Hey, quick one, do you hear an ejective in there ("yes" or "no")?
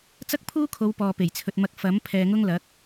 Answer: no